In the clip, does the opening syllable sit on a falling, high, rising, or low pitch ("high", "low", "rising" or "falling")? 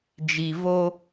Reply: low